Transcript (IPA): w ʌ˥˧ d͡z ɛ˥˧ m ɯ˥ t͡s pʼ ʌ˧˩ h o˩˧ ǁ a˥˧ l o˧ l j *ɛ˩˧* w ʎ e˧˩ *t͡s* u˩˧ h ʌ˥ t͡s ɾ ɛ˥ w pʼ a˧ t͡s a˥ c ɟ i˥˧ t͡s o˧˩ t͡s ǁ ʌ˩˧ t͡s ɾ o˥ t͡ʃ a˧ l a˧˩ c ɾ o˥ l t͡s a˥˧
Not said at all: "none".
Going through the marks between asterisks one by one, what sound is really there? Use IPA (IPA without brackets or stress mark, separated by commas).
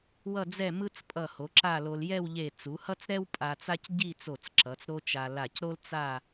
ɛ˥˧, t͡s